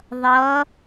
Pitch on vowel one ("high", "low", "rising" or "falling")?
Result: rising